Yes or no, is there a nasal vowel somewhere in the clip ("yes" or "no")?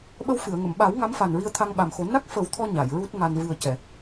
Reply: no